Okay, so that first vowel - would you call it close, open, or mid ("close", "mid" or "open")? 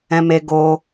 mid